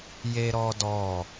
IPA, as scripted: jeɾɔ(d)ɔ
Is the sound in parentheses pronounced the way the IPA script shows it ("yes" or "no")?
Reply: yes